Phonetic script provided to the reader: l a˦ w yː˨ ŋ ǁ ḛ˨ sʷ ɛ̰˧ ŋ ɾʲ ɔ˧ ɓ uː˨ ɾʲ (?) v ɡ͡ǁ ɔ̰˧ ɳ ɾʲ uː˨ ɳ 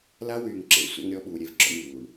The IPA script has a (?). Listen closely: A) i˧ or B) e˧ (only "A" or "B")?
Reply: B